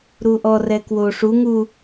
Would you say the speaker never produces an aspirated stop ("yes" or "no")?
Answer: yes